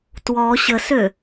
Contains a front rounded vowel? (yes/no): yes